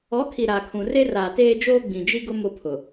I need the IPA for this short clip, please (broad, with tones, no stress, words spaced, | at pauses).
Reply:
ɔ˨˦kʰi˨ ɾaː˨kʰũ˨ re˦raː˨teː˦d͡ʒoː˦ ɡ͡bĩ˨d͡ʒi˦ɡʊ˦ mʊ˦pʰʊ˨